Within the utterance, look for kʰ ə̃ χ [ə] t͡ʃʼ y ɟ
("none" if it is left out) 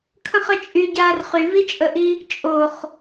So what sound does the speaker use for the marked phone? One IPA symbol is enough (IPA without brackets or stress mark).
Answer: ə